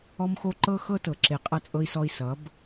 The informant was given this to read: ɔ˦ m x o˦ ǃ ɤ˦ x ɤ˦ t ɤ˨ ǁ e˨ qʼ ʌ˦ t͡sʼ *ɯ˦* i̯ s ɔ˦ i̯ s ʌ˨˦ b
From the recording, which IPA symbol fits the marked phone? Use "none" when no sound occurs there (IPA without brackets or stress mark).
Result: ɤ˦